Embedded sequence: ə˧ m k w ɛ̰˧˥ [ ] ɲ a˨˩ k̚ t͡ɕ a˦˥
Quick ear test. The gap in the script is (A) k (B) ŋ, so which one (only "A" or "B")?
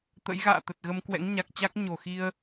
B